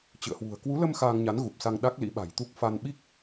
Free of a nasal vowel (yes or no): yes